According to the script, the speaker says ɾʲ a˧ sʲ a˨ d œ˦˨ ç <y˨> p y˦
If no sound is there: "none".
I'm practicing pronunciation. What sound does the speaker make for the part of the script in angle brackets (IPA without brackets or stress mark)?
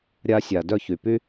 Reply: y˨